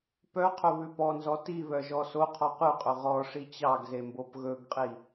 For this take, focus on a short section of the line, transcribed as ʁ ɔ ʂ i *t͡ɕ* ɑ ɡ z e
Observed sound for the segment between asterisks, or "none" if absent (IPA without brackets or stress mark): t͡ɕ